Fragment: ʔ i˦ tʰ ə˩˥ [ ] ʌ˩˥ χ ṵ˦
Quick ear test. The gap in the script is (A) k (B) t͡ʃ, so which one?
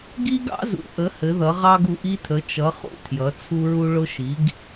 B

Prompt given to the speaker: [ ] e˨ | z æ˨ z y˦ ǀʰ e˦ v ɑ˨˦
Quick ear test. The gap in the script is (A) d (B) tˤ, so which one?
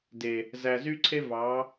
A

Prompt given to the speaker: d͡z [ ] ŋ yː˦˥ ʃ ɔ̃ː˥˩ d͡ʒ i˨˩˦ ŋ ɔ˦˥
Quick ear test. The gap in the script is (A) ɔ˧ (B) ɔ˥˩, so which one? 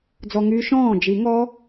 A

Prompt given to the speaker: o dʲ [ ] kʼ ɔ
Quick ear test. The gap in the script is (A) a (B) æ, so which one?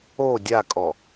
A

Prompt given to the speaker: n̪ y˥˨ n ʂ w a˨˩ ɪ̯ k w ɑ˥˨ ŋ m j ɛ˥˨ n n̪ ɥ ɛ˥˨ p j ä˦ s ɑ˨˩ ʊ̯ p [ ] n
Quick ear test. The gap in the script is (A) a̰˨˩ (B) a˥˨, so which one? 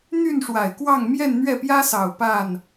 B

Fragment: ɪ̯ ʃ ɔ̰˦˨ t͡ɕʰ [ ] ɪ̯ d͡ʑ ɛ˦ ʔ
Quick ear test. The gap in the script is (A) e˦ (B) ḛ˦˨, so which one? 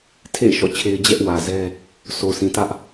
A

